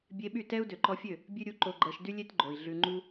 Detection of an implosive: present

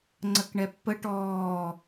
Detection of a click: present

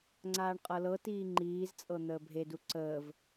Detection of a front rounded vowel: absent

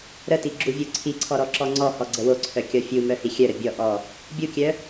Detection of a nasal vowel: absent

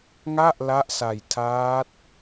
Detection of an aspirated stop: present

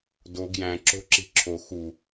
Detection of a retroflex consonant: absent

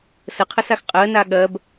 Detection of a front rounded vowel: absent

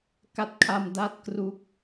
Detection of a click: absent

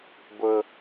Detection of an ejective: absent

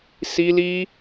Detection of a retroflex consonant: absent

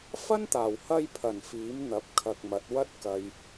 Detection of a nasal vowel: absent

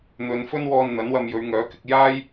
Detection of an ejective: absent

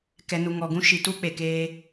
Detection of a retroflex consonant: absent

